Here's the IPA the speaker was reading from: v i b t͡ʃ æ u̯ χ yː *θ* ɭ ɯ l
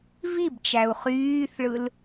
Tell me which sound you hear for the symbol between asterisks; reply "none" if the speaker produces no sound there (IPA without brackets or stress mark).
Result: θ